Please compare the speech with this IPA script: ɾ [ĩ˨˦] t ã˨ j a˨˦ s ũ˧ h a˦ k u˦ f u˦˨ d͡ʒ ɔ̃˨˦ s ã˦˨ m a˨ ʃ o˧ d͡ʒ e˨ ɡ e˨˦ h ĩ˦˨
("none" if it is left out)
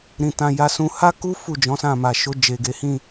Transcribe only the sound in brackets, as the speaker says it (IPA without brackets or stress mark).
ĩ˨